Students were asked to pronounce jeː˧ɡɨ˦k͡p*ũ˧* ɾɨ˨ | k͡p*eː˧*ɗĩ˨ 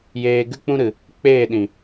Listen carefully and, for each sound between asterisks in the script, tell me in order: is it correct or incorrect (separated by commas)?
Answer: incorrect, incorrect